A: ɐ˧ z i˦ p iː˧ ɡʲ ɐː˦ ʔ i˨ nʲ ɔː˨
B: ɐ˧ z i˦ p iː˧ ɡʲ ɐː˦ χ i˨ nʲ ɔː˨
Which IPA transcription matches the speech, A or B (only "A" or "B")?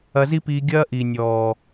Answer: A